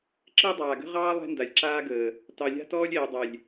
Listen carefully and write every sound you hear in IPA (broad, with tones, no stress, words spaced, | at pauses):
ǁəː˦dˤaː˨ɡə̤˦ ʁɑː˦ lˠɛ̤˦nda˨lʲǁaː˦ɡəː˨ | tɑ˨lʲa̤˦ tɔː˦lʲɛː˨ dˤɛ˨lʲ